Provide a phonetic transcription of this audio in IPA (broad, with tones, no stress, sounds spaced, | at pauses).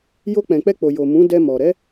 j o˧ k͡p ɛ̃˨ k͡p ɛ˧ k͡p o˨ j o˨ m ũ˨˦ d ɛ˧ m ɔ˨ ɾ ɛ˨˦